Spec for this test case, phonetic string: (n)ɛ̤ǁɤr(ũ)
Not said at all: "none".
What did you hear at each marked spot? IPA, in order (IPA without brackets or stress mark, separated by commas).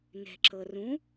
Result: n, ũ